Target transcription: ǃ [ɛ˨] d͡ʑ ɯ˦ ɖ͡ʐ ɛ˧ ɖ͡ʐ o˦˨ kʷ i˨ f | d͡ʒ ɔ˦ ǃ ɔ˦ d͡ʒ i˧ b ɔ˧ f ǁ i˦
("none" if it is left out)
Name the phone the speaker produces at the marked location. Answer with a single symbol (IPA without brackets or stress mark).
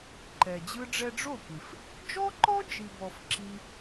ɛ˨